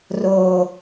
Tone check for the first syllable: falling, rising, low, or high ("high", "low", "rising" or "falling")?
low